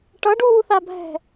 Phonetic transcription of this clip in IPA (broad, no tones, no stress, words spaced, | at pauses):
ʈʌɖuːθabʱɛ̤